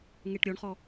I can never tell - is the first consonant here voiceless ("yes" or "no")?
no